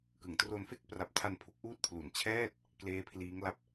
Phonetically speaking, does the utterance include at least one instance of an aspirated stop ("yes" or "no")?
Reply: yes